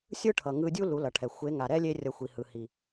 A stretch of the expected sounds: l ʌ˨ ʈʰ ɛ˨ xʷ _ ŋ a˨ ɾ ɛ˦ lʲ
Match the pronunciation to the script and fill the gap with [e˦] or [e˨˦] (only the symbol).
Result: e˨˦